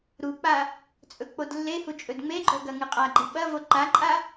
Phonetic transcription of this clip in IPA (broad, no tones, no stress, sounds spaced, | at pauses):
ɾ u k͡p a | t͡sʼ ɵ k͡p o d lː e h u t͡ʃʼ ɵ d ŋ͡m e ɡ͡ǃ o ɡ ɐ ŋ ɨ qʼ a ɡ͡ǃ ɨ ɓ ɐ v o ǃ a ǃʼ a